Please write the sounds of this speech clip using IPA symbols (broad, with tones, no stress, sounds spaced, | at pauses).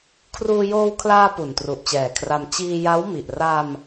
kʰ r uː˧ j oː˧ w kʰ l aː˧ p u˨˩ n t r u˨˩ ʔ t͡ɕ ɛː˨˩ kʰ r a˧ m t͡ɕ iː˧ j a˦˥ w m i˨˩ ʔ r a˧ m